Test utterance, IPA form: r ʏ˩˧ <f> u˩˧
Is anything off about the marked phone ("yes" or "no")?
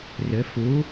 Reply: no